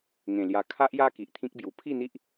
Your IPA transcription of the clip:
ŋ ẽ˨˩ l j a˧ kʰ a˦ ʔ j a˦ k i˨ ʔ t̪ʰ ĩ˦ k̚ b j u˨˩ pʰ i˥˧ n̪ i˦ ʔ

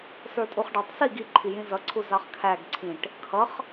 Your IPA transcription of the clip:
s ə˞ tʼ u χ ɖ ɑ tˤ s i ɡ i ǃʰ i j ĩ z ʌ ǀʰ u z ɑ χ kʰ æ ɡ ǀʰ ĩ ʈ | kʰ ʌ χ

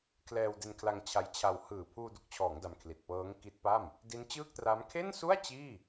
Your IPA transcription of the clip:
kʰ l ɛː˧ w d e˧ n kʰ l a˧ ŋ t͡ɕʰ a˦˥ j t͡ɕʰ a˧ w h ɯː˨˩ pʰ uː˧ d u˨˩ k̚ t͡ɕʰ ɔː˩˦ ŋ d a˧ m kʰ l i˨˩ t̚ p ɤː˦˥ ŋ k i˦˥ t̚ p a˥˩ m | d i˦˥ n t͡ɕ ɯː˥˩ k̚ t r a˦˥ m kʰ e˥˩ n s u˥˩ a̯ t͡ɕ iː˥˩

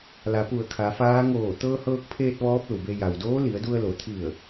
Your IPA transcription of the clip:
l a˩˧ p u˧˩ ə̯ kʰ a˩˧ f aː˧˥ ŋ oː˧˩ t̪ ɤː˧ h ɤː˧ k̚ pʰ eː˧ t̚ ʋ ɔː˧˥ p̚ l u˩ b e˧ j a˩ w d oː˧˥ l i˩˧ ə̯ d u˧ ə̯ l o˩˧ t̪ʰ i˧˩ ə̯

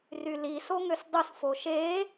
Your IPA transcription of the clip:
r y l i s o ŋ ø s dˤ u s f o ʃ e

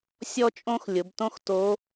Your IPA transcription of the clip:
sʲ ɔ˥ t͡ʃʼ õ˥ x lʲ ʊ˩˧ b t õ˥ x t o˧˥

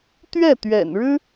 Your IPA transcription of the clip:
t̪ ɥ ɛ˥˩ t̪ ɥ ɛ̰˨˩ n ɻ ɻ̩˥

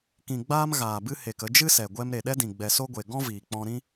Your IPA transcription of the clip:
k ĩ˨ ɡ͡b aː˧ m ɣ aː˨ b ɨ˧ h e˨ k ə˧ d͡ʒ ɨ˦ s ɛ˨ ɡʷ ɛ˧ m ɾ e˨ ɗ ɛ˦ d ĩ˨ ɡ͡b ɛ˨ s o˦ ɡʷ e˨ ɡ ɔ̃˦ v iː˨ k͡p ɔ̃˧ ɾ ĩ˦

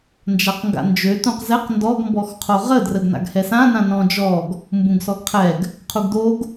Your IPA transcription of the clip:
n d͡ʒ a q ŋ ɡ a̰ n d͡ʒ ø t ũ q z ɛ q n d ɔ ɡ m b ɔ x qʰ o ʁ ə d r ə ɡ n a̰ ɡ h ɛ s ã n ã n ɔ̃ d͡ʒ ɔ ɡ | m b ũ ɡ s ɔ ɡ qʰ ɛ ɡ | qʰ u ɡ d o ɡ

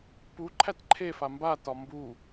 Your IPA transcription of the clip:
p u ǃʰ æ t ǃʰ e f a m b a t ɒ m b u

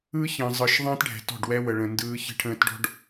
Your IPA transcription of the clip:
ɯ˦ ç ə̃ː˨ zˤ ɯ˨ ʃ ðˤ ə̃ː˦ t ɖʱ ɛ̤˨ t ɔ̤˦˨ ɖ w ɛ˦ w ə˨ ɭ ə̃˨ n d ɯː˦ ç ə̤˦ ʈʰ ə̃ː˦ t ɖ ɔ̤˦ ɖ

